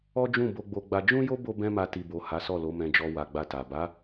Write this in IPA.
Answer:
ɔ˦ d͡ʒ ũ˦˨ b o˧ ɡ͡b o˧ ɡ͡b a˧ d͡ʒ ũ˦ j o˦ b o˦ b ɛ̃˦ m a˧ t i˨ b o˨ h a˨˦ s ɔ˦˨ l o˨˦ m ɛ̃˧ d͡ʒ ɔ˧ w a˨ ɡ͡b a˧ t a˨ b a˨˦

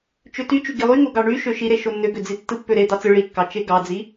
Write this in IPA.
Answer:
t͡ʃ ø t y t͡ʃ y ɡ i lˠ y ŋ o ɡ ɑ ɳ y ʃ ø ʃ i ɾ e ʃ o nː ø ɡ ø d͡z i tː ɯ pː ø ɾ e d̪ ɑ t͡s ɯ ɭ i kː ɑ t͡ʃ e ɡ ɑ d͡z i

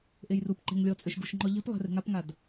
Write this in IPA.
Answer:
ʔ e j r u p ǃ e̤ ŋ lʲ ɔ t͡sʼ ø ʃ ɡ u ʃ ŋ͡ǃ ɔ ʎ e̤ p lˠ e̤ r e̤ ŋ a p ŋ a d

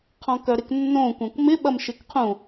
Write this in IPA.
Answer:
qʰ ɔ̃ k œ ɾ ɪ k nː õ kʷ œ̃ kʷ m ɪ ɓ ɐ m ʃ ɪ k qʰ ũ

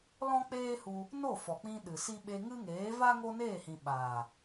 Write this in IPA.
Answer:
l ɔ̃˦ k͡p eː˦ h u˧ | n o˦˨ f ɔ˨ k͡p ĩ˧ ɗ ɨ˨ s i˦ ɓ e˧ ŋ ɨ˦ ŋ eː˨˦ v a˦ ŋ o˦ n eː˦˨ h ĩ˨ ɓ aː˨

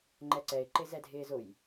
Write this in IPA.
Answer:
ŋ͡ǃ ɛ ǀ ɛ ɪ̯ ǃ ɪ z ɛ dʱ ɪː z ʊ j

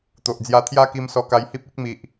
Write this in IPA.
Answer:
t̪ o˨ ʔ d͡z j a˧ t̪ʰ j a˦ k i˧ m s ɔ˧ k a˧ j h i˦ p̚ i˦ k̚ m i˨ ʔ

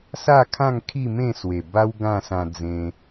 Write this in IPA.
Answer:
s a˥˧ kʰ ã˥˧ ŋ kʰ i˥˧ m ẽ˥˧ s w e˨˩ b a˦ w ɡ ã˥˧ s ã˧ d͡z ẽ˧

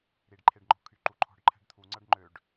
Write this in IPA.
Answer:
ɾ i ɖ ǃʰ e ɖ ŋ͡ǃ ɔ̤ kʰ y ǃ u ǃʰ ɔ̤ ɖ ǃʰ ɛ̤ ɖ t̪ʰ u ŋ͡ǀ ʌ ɖ ŋ͡ǃ ø ɖ

